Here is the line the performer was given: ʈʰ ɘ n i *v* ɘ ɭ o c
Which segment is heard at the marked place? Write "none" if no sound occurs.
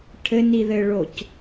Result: ð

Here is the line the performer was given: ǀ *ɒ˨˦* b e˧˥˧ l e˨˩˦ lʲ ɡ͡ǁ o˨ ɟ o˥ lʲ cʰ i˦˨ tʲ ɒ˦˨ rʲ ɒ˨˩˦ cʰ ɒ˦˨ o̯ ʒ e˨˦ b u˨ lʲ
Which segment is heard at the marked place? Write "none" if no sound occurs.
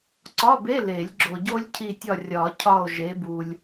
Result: ɒ˧˥˧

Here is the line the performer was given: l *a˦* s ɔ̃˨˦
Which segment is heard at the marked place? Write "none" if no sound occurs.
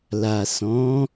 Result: a˨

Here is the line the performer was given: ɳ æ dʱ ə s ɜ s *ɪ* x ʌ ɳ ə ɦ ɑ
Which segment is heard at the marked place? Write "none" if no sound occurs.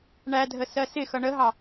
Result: ɪ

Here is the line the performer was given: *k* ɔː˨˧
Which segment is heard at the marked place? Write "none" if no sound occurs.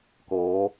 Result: k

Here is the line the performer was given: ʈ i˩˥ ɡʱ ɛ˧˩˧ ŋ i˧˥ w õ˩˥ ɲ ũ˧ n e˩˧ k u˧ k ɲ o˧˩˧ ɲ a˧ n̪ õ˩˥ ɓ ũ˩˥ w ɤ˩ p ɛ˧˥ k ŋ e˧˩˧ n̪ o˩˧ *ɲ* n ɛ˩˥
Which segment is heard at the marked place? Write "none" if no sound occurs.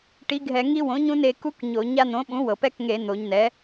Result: ɲ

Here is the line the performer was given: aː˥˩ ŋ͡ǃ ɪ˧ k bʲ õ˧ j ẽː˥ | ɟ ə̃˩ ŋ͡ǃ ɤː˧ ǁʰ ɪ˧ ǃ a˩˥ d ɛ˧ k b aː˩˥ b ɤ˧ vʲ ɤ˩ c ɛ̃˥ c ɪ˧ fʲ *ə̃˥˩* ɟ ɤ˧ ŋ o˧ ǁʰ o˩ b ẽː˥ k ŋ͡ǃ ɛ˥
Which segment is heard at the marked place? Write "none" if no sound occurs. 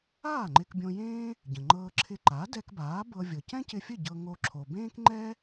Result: ə˥˩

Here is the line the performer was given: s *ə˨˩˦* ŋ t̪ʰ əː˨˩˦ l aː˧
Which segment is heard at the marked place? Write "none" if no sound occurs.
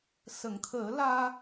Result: ə˨˩˨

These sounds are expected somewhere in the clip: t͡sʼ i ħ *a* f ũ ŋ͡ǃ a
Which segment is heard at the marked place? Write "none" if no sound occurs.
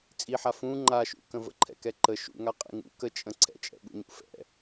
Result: a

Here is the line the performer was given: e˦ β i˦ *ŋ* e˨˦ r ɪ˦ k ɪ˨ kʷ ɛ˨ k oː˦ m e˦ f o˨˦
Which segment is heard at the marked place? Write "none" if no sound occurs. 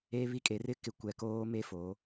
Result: kʼ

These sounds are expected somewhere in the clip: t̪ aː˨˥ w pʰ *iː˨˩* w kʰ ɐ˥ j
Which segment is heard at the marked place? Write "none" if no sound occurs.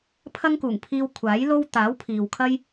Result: iː˨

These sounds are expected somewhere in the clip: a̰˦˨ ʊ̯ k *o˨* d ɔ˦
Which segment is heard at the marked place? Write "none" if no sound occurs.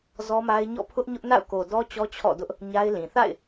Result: o˨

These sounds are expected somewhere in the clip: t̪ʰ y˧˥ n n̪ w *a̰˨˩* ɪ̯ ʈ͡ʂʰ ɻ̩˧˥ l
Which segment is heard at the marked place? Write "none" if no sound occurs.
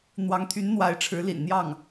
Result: a˧˥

